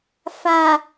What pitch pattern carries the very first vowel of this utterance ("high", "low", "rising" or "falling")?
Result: low